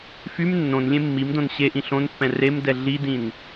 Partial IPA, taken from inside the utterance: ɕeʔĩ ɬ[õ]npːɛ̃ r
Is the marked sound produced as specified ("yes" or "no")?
yes